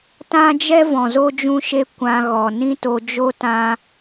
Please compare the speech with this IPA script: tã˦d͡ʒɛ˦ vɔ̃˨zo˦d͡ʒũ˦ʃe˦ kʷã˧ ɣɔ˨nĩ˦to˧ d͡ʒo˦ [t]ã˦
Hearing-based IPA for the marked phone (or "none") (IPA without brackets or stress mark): t